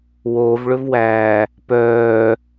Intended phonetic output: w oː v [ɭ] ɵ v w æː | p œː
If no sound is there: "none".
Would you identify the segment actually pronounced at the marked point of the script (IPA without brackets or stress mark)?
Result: ɭ